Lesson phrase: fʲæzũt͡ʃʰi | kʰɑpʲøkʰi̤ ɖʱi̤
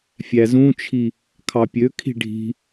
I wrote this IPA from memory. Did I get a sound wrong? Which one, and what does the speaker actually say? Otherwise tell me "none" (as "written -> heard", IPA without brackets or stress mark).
none